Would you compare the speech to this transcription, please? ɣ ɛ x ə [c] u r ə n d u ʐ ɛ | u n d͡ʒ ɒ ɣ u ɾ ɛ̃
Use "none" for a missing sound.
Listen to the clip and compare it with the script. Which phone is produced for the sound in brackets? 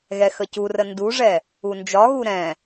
c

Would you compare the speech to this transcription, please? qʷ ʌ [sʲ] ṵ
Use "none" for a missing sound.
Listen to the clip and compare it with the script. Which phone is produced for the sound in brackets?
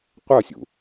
sʲ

